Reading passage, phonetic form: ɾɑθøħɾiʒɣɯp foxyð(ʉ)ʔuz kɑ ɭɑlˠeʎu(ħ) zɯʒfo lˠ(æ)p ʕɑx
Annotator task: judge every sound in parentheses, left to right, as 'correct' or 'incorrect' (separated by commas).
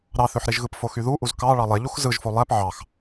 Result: incorrect, incorrect, correct